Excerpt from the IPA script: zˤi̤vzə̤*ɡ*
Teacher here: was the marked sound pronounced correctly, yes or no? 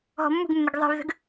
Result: yes